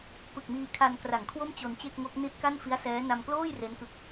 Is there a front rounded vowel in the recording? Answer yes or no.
no